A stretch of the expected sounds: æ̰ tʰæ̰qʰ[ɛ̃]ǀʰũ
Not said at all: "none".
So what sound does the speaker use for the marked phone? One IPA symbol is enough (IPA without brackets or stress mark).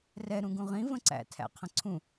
ə̃